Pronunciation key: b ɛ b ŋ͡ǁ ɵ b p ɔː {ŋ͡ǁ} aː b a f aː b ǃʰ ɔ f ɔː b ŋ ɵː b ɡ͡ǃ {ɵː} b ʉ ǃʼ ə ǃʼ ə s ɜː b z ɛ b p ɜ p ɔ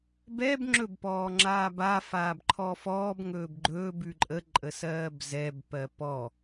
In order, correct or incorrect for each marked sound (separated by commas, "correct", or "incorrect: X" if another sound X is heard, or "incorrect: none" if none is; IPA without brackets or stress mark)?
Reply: correct, correct